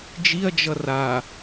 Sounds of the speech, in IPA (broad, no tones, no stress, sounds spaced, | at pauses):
d͡ʒ i ɐ̯ d͡ʒ ʌ r a